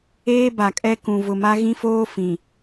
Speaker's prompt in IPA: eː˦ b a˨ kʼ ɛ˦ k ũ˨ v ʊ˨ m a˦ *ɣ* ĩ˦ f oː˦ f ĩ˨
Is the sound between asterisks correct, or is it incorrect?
correct